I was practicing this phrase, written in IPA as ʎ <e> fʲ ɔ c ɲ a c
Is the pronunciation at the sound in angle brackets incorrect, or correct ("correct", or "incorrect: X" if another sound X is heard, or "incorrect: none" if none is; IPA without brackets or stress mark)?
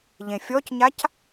incorrect: ẽ